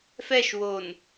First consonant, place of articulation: labial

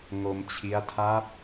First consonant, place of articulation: velar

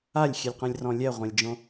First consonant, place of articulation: alveolar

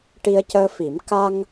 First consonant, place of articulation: retroflex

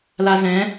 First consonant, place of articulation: alveolar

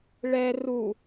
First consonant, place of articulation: retroflex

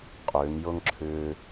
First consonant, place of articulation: uvular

